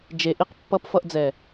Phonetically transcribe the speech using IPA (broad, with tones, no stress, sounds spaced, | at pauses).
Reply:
d͡ʒ e˨ ʔ i˧ q pː ʌ˧ p f ʌ˧ ʔ d͡z ɛ˨